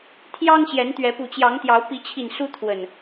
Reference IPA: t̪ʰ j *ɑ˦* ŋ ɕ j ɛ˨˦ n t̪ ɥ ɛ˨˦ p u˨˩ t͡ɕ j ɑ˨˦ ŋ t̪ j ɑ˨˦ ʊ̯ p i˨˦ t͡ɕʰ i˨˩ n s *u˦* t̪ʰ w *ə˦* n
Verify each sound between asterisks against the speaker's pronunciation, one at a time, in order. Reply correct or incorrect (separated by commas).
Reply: correct, correct, incorrect